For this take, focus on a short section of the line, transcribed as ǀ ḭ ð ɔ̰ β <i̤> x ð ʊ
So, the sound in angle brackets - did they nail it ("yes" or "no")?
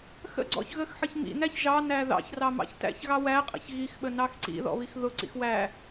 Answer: no